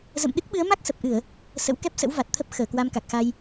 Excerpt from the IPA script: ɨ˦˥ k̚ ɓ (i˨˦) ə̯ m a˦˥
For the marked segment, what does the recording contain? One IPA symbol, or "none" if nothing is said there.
ɨ˨˦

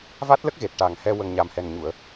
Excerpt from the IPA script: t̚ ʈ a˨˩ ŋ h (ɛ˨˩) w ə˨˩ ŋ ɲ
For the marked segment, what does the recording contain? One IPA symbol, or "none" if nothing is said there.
ɛ˧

